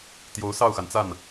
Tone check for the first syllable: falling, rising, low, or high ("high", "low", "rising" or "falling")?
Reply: rising